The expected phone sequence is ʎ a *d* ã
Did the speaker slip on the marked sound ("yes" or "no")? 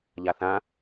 yes